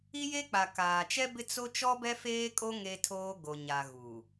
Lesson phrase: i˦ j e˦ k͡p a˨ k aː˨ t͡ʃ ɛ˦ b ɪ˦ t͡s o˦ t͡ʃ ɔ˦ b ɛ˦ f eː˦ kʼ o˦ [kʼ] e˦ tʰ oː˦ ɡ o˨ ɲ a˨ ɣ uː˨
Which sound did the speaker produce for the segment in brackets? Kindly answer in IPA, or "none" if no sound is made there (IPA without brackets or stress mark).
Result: ŋ